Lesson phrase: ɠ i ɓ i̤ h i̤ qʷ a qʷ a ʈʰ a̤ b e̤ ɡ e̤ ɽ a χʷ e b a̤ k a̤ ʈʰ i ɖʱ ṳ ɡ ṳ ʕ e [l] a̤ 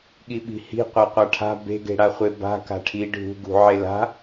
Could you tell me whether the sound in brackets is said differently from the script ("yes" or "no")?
no